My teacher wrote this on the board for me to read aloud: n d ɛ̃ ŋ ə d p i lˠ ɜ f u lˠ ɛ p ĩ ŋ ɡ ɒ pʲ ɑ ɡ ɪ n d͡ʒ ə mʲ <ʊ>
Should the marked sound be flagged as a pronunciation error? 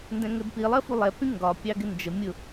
no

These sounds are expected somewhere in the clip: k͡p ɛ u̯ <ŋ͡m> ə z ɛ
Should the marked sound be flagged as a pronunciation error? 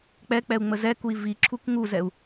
no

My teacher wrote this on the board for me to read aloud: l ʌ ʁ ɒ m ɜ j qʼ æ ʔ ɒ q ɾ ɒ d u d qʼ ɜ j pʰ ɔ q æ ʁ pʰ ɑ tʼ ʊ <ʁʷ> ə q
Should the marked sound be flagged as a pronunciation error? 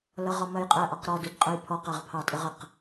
yes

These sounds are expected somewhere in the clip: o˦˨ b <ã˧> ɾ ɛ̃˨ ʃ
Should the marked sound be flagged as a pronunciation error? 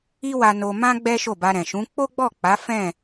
yes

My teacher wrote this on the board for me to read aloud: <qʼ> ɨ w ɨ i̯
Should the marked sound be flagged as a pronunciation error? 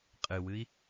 no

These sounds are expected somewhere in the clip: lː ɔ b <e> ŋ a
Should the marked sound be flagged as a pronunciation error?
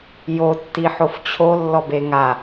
no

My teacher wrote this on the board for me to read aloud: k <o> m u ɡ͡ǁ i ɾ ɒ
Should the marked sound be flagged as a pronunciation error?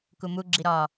yes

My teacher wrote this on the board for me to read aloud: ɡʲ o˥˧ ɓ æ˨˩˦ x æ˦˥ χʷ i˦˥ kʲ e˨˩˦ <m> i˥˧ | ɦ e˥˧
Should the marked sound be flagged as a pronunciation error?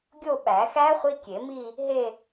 no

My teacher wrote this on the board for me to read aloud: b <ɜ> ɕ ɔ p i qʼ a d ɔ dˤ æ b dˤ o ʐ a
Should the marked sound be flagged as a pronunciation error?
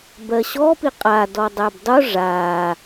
no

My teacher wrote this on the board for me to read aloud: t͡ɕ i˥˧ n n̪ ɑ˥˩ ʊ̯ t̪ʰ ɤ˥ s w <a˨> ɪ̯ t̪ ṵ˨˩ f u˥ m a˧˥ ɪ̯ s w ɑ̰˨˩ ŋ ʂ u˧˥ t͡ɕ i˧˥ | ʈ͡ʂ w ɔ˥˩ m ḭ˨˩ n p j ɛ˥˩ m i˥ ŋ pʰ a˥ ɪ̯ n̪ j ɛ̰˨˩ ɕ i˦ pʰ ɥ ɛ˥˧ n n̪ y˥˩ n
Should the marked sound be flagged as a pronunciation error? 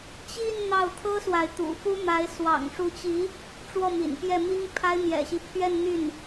no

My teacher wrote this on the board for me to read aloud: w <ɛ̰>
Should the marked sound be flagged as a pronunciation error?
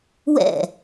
no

